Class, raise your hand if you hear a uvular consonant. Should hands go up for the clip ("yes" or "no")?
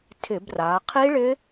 yes